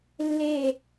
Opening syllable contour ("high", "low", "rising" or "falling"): falling